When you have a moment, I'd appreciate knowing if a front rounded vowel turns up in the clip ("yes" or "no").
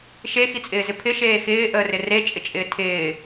no